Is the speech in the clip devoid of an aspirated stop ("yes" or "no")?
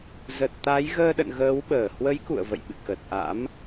yes